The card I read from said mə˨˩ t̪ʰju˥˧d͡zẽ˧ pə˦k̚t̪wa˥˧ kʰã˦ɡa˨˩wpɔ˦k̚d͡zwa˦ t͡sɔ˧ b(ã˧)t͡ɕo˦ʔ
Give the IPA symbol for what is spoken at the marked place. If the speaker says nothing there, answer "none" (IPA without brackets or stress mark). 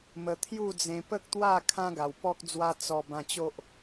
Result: ã˧